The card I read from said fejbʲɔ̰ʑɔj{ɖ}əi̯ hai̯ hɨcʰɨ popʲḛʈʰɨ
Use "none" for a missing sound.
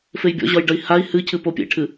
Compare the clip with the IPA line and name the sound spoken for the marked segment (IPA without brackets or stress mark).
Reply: ɖ